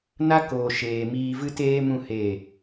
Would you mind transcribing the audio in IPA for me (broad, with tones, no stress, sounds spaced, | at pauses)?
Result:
n a˦ k oː˨ ʃ eː˨ m iː˧ v ɨ˦ t eː˦ m ũ˦˨ h e˦˨